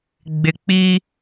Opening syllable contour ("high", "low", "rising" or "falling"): low